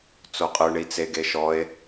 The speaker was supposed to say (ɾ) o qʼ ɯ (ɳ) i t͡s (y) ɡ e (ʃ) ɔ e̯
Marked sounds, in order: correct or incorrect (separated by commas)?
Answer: incorrect, correct, incorrect, correct